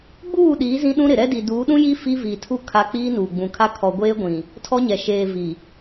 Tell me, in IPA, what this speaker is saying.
ɡ͡b uː˦˨ ɗ iː˨˦ z ĩ˦ ɗ ũ˦ ɾ ɪ˨ ɾ ɛ˦ d i˨ d uː˨˦ ɗ ũ˦ j i˦ f i˦ v i˨ tʰ u˦ kʰ a˦ k͡p iː˦ n uː˨ ɡ͡b ũ˨ kʰ a˦ kʰ ɔ˨ ɡʷ eː˦ ɡʷ ĩ˨ | tʰ ɔ˦ ɲ ɛ˨ ʃ eː˨ v i˨

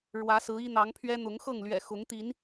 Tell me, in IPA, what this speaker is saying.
ɻ w ä˨˦ s ɹ̩˨˦ i˦ n̪ ɑ˨˦ ŋ pʰ ɥ ɛ˦ n̪ ʊ˨˦ ŋ x ɤ˥˨ ŋ l ɥ ɛ̰˨˩ x ʊ˨˦ ŋ t̪ i˨˦ n

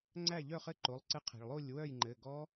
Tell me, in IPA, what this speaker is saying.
ŋ͡ǀ æ˥˨ ʎ œ˥˨ χ ɘ˥˨ ǃ o˩˧˩ lˠ ǀ ɘ˦˥ qʰ e̤˩ ɭ lˠ o˥˨ lʲ w œ˥˨ j ŋ͡ǃ ɘ˩˧˩ ɡ ɔ˦˥

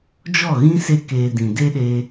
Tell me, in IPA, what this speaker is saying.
d͡ʒ ɔ˦˨ ɣ ĩ˦ s e˦ k eː˧ d ĩ˨ d e˦ ɗ e˧

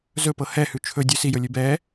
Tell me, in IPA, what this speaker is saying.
z ɵ p ɤ h ɛ h ʉ t͡ʃʰ ɵ dʲ ʉ s i j ɵ lʲ ʉ b ɛ

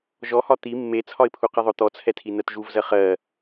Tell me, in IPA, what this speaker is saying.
ʒ ɔ h ɒ t̪ i mː e t͡sʰ ɒ ɪ̯ pʰ u q i ðˤ ʊ t̪ ɔ t͡sʰ ɛ tʰ i n ɜ t ʒ u v z ɜ χ ɜ

